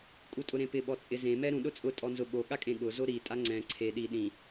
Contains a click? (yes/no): yes